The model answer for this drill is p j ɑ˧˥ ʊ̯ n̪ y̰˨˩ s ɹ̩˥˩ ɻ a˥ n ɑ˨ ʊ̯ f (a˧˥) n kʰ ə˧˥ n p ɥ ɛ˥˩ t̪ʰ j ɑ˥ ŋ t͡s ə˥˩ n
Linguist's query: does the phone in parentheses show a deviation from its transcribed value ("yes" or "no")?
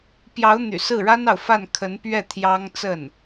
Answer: yes